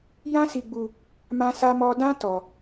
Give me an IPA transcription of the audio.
jã˦si˧ɡ͡bu˧ | mã˦sa˦mɔ˦ dã˦ tɔ˧

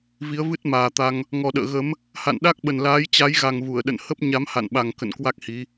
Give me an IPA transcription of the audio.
vi˨˦ə̯vɨ˦˥t̚maː˨˩t̪a˧ŋ | ŋɔ˨˩ɗə̰ː˧˨ ɣə˨˦m | ha̰˧˨nɗa˦˥k̚ɓə˨˩nlaː˨˦j t͡ɕa˨˦jɣa˨˩ŋ vu˧˩ə̯ɗə̰˧˨n hə˦˥p̚ ɲa˨˦mha̰˧˨nɓa˨˩ŋ kə̰˧˨nkwa˦˥k̚hi˨˦

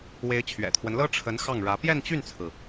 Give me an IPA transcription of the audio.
we˧˥ɪ̯t͡ɕʰɥɛ̰˨˩t̪ʰwə˦n lɤ˥ ʈ͡ʂʰə˧˥n xɑ˥˩ŋɻä˧˥ pjɛ˥˧nt͡ɕy˥˩nt͡sʰɹ̩˩

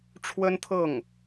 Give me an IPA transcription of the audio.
ʈ͡ʂʰwə˥nt̪ʰɤ˥˩ŋ

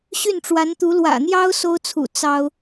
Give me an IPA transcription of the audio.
ɕy˥˩nʈ͡ʂwa˧˥nt̪u˧˥ lwä̰˨˩n̪jɑ˥ʊ̯ so˥ʊ̯t͡sʰṵ˨˩ t͡sɑ˥ʊ̯

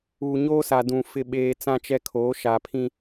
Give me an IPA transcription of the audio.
uː˨ɲoː˦sa˨ dũ˨ fɪ˨ɓeː˨ t͡sã˦t͡ʃɛ˦kʰoː˨˦ ʃa˨pʰĩ˦

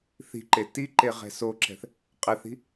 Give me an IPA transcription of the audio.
θi̤ǃe tiǃe ʁɛ̤soǁɛ̤θ | qʼɛθi̤

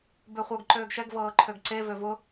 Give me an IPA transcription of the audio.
bøχʷɤɡ ǃøːɡʃɛɡ vɤːǃʰøɡǀe vøvʊ

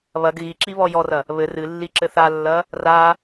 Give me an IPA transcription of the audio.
βɐɡ ɣiǁi βɔjɔrɐ | βɘ rɨ lːiǁɘθalːɐ | ra

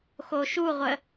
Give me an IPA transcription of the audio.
xoʃuʁʷə

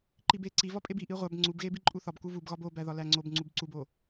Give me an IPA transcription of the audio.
ǃibe ǀivɒpʼeb iʔi ʁʷæb ŋ͡ǀubɣebi ǃʼuθɒbku vubɣɒb obæ ðɒlæŋ͡ǀob ŋ͡ǀubǀubo

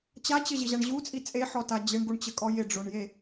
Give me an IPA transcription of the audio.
t͡ɕat͡ɕɘʑɪʑaɳ ʑut͡sʼi t͡sʼeħɔta d͡ʑɪɳɡuɳt͡ɕɘkʼɔ jɪɖ͡ʐoɳje

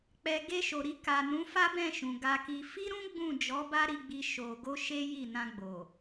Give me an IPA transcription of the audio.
k͡pɛ˨ ɡe˧ʃo˨ɾi˧ ka˨ nũ˨˦fa˦bɛ̃˦˨ʃũ˨ ɡa˧ki˧ fi˦ɾũ˦ ɡ͡bũ˦˨ d͡ʒɔ˨˦ba˦ ɾi˧ɡ͡bi˧ ʃo˨ɡo˧ ʃe˦ji˦˨ nã˧ɡ͡bo˨

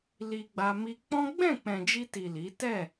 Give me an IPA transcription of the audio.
li˧ɡ͡ba˧ mi˧k͡pɔ̃˦ ɡ͡bɛ̃˦˨k͡pɛ̃˨d͡ʒi˧ti˨ li˨˦ tɛ˦˨

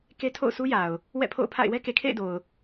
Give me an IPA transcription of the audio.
ke˦tʰo̰˦˨ʊ̯sʰu˦ja˨ʊ̯ | wɛ̰˦˨pʰo̰˦˨ʊ̯pʰa̰˦˨ɪ̯ wɛ˦ke˨kʰḛ˦˨ɪ̯do˨ʊ̯

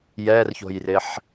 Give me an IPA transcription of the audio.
jɛrço̤jrɪħ

